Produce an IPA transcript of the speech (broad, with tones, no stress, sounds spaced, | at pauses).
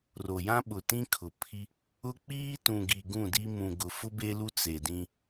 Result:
r o˨ j ã˦ ɓ ʊ˨ t ĩ˦ kʰ ʊ˨ pʰ i˦ | ʊ˦ k͡p iː˦ t ũ˨ ɡ i˨ ɡ ũ˦˨ d i˦ m ũ˨ ɡ ʊ˨ f ʊ˦ b e˦ l u˦ t͡s e˨ d ĩ˦